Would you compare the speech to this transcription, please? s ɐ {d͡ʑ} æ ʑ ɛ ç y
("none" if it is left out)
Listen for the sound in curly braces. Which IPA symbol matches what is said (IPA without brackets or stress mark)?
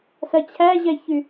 t͡ɕʰ